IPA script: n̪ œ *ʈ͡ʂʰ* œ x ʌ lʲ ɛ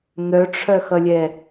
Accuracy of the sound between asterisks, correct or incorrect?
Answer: correct